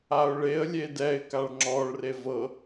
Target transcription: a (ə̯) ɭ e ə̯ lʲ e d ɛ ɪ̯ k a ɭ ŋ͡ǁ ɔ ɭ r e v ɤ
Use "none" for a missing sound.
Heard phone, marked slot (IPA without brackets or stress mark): ʊ̯